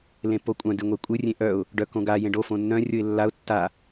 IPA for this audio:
l ẽ pː o kʷʼ œ̃ d ɨ ŋʷ e kʷʼ ɨ rʲ ẽ ʔ œ ʊ̯ | ɖ œ k õ ɡ a j ẽ ɖ o f õ nː œ̃ rʲ o ɪ̯ lː a ʊ̯ tː a

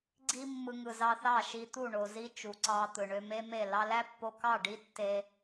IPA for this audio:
ɡ͡ǀ i˧ mː ɯ˨ ŋ ɯ˨ z ɑ˧ θ ɑ˦˨ ʃ i˧ t̪ u˦˨ ɳ o˨ z i˧ t͡ʃ u˨ ǀ ɑ˧ t̪ ɯ˨ ɳ ø˧ m e˦ m e˦˨ l ɑ˧ l æ˦ pː o˧ k ɑ˦˨ ɖ i˦ tː e˧

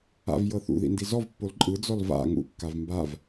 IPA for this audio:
a̰ v j ɤ θ ṵ ð ḭ n d i z ɔ v pː o l ǃʼ ɯ d͡z ɔ l v a̰ ŋ ṵ kː a v m b a v

